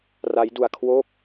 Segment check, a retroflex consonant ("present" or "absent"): absent